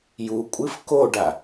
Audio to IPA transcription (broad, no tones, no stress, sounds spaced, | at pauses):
j u kʷʼ ɨ f k o ɖ a